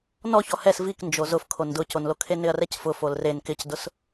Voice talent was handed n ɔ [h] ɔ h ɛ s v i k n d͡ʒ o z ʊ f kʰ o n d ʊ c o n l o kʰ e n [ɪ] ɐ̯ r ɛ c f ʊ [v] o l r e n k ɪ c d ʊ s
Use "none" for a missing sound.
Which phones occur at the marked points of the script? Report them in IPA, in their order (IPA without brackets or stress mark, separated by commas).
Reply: ç, ɪ, f